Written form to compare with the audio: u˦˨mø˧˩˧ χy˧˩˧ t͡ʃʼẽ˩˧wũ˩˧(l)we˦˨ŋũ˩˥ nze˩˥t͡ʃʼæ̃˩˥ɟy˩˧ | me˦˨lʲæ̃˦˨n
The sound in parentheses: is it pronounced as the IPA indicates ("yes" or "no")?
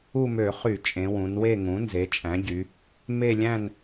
no